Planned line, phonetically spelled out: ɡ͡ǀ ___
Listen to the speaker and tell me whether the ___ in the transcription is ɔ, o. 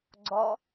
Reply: ɔ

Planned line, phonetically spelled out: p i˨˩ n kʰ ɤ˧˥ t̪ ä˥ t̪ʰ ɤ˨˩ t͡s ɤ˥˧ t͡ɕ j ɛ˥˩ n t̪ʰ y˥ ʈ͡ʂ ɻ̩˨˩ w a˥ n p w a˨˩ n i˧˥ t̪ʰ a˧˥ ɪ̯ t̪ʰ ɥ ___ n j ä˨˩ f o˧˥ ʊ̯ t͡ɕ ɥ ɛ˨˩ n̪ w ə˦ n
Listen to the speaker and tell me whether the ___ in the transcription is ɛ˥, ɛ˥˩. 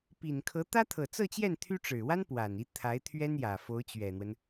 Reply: ɛ˥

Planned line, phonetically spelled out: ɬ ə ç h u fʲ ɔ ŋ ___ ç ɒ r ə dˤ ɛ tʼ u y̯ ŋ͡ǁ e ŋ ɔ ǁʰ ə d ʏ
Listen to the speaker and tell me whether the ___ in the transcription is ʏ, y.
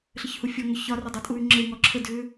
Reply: ʏ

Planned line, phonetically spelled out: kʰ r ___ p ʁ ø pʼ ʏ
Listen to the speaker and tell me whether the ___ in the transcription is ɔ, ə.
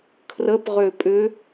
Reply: ə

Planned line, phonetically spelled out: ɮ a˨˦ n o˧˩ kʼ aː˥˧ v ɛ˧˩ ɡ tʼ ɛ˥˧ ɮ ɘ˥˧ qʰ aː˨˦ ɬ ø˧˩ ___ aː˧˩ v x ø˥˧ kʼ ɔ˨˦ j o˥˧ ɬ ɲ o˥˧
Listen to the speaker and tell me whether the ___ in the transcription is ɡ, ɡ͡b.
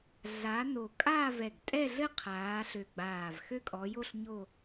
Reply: ɡ͡b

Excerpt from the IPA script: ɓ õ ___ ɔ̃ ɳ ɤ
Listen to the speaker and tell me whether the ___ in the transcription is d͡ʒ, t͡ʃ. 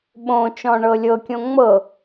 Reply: t͡ʃ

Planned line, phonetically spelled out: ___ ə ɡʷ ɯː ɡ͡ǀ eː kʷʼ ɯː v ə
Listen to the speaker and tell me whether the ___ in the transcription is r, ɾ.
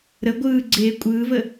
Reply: ɾ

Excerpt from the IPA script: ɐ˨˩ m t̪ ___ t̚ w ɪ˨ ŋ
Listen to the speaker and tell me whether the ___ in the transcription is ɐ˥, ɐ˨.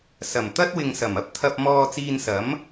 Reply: ɐ˥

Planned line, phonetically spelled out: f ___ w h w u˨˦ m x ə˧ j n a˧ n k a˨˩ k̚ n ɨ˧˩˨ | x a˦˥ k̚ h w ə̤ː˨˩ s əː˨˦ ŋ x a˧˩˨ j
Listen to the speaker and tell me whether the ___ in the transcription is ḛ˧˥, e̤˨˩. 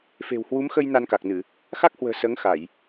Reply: e̤˨˩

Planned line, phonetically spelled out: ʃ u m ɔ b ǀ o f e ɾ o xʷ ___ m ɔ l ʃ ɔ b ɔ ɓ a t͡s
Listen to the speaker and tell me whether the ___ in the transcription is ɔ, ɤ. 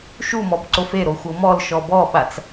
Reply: ɤ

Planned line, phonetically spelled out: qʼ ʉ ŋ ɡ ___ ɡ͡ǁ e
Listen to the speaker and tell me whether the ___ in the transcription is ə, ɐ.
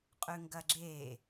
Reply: ɐ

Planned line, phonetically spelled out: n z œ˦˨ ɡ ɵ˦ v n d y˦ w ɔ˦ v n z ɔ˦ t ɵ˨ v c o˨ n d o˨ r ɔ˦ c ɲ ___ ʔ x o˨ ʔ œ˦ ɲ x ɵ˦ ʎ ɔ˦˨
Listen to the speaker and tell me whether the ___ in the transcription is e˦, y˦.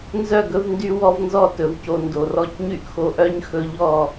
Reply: y˦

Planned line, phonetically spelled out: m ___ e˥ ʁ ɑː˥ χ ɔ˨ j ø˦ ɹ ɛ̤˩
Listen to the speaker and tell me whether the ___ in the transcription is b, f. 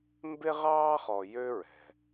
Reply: b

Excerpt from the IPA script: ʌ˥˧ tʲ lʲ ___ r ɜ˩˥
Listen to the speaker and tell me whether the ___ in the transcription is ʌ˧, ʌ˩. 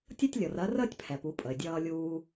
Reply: ʌ˩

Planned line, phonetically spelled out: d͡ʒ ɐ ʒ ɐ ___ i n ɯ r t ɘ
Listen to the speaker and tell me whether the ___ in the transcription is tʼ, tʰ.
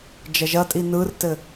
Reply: tʼ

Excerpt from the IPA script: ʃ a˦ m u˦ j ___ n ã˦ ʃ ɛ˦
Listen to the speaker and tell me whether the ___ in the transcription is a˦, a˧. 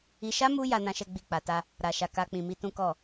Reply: a˦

